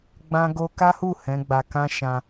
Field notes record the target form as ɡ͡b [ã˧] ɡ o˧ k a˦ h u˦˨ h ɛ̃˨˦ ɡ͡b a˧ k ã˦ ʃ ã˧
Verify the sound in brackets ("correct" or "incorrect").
correct